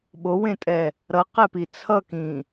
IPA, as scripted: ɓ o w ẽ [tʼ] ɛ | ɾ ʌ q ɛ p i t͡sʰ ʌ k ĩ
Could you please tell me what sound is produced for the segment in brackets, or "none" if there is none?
tʼ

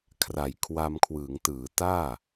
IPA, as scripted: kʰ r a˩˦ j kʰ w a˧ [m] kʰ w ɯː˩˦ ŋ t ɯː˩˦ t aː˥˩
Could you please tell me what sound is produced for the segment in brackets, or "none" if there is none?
m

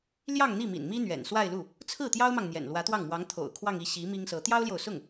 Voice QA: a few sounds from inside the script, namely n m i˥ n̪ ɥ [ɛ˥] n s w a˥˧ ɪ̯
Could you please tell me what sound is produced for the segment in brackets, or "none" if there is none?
ɛ̰˨˩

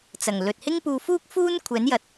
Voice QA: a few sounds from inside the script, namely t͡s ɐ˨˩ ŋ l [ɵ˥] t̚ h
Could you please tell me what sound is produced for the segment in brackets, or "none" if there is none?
ɵ˨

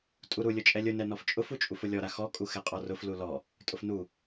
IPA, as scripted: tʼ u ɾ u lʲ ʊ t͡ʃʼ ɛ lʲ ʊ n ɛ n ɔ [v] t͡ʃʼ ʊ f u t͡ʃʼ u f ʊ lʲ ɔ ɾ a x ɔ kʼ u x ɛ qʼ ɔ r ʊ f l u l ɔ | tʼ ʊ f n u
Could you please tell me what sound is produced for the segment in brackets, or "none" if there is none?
f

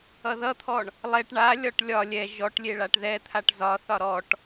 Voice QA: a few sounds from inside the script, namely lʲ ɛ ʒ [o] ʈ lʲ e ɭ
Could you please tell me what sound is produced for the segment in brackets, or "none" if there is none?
ɔ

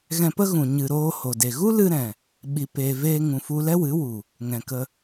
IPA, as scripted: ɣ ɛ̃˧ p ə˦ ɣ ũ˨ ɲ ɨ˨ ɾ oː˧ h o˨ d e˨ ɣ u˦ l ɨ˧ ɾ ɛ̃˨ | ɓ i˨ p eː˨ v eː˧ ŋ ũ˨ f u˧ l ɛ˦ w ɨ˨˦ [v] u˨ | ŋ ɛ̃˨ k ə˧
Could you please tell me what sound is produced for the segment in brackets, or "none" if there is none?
w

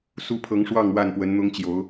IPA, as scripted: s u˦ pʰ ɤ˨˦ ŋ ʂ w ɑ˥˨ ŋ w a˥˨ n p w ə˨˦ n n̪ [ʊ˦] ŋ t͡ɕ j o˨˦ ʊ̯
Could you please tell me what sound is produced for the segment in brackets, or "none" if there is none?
ʊ˦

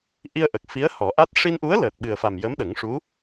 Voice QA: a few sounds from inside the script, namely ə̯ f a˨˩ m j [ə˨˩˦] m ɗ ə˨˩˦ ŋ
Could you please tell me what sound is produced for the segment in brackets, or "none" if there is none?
ə˧˥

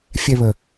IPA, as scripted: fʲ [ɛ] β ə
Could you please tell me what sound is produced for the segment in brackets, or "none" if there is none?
ɛ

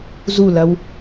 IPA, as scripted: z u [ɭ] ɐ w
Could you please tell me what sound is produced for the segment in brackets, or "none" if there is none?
l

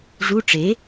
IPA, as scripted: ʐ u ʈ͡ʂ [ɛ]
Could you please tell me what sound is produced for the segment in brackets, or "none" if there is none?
e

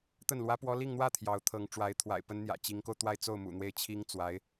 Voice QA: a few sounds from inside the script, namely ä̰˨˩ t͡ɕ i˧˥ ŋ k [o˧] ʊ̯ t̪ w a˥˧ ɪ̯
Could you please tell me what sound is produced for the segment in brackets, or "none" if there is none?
o˧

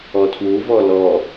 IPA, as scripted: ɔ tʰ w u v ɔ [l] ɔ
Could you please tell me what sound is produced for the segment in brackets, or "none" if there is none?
l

